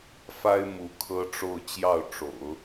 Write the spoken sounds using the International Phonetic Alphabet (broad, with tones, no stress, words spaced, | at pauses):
fa˥ɪ̯mu˧˥ kʰɤ˥ʈ͡ʂo˥˧ʊ̯ t͡ɕjɑ˥˩ʊ̯ʈ͡ʂo̰˨˩˦ʊ̯